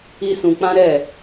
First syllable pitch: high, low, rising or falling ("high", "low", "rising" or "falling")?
low